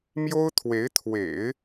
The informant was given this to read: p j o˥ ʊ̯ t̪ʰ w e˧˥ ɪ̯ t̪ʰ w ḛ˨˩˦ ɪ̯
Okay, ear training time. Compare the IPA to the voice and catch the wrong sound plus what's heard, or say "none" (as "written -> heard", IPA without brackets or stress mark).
p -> m